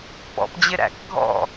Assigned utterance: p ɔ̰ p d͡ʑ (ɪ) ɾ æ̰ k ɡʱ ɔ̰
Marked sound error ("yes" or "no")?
no